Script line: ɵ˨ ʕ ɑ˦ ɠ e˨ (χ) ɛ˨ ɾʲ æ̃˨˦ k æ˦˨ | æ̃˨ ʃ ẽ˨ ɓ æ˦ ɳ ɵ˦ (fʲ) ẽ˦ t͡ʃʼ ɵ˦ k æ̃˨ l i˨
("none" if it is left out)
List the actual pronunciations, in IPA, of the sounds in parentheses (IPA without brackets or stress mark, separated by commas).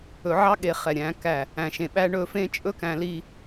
χ, f